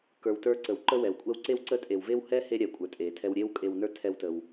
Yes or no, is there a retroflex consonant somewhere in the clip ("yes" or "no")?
no